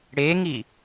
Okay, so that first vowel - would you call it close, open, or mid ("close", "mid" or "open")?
mid